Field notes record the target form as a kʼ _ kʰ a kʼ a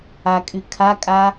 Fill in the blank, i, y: y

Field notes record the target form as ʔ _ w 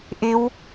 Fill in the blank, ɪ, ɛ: ɪ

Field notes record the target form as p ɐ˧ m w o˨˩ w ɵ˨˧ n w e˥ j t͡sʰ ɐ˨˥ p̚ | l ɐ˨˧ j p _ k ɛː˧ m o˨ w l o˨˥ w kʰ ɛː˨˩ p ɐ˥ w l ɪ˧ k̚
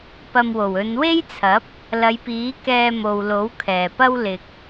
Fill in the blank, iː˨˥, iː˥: iː˨˥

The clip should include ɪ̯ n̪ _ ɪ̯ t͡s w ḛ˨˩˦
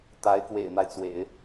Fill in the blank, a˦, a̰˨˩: a˦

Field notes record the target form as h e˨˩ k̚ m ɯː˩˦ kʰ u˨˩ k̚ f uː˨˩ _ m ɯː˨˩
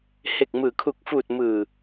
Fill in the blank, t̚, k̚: t̚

